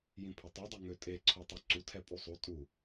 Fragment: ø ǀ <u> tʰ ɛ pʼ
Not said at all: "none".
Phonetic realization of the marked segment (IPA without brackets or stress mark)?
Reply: u